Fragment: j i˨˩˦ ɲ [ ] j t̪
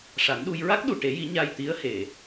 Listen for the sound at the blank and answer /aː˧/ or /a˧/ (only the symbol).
a˧